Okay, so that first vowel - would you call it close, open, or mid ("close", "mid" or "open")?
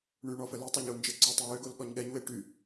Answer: close